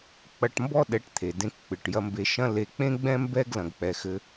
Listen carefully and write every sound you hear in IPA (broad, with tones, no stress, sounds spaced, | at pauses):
k͡p ɐ˧ ʈ m b ɔ˥ ɗ ɛ˧ ʈ t̪ʰ e˩ d ẽ˧ k k͡p ɨ˩ ʈ j ɐ˧ m b e˧ ʃ ɐ̃˥ l e˧ k͡p ẽ˥ ɡ͡b ɛ̃˥ m b ɛ˥ ɡ l ɐ̃˧ ɡ k͡p ɛ˧ x ɘ˧